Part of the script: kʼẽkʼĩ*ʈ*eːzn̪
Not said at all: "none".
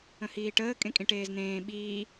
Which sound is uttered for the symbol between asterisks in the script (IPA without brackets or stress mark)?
ʈ